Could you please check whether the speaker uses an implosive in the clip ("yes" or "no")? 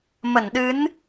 yes